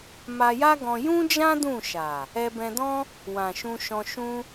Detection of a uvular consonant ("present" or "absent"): absent